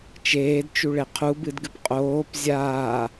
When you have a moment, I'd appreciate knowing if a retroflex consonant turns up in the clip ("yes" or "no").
yes